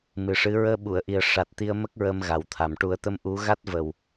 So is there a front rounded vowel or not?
no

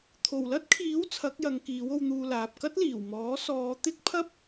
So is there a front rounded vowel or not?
no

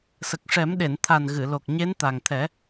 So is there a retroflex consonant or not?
yes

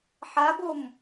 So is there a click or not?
no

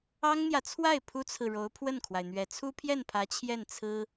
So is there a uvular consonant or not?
no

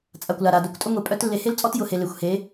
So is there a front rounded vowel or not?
yes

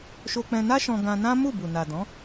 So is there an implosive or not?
no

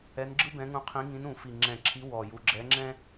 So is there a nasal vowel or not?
yes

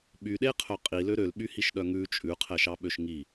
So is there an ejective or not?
yes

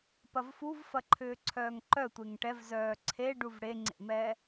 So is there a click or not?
yes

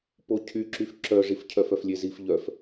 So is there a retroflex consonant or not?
yes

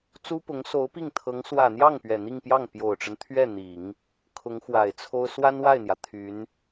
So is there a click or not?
no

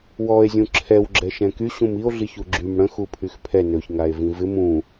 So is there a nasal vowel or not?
yes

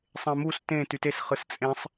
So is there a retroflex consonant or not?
no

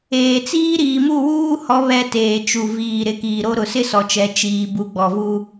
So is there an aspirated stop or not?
no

